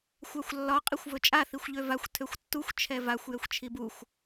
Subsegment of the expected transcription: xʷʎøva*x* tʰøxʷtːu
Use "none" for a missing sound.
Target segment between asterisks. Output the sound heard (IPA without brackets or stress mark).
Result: xʷ